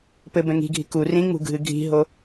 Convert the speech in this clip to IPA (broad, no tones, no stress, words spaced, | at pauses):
pɘ bɛ̃ŋi̤ɡʱi̤ ku rĩŋ͡mṳ ɡʱɨɡʱi̤ɦo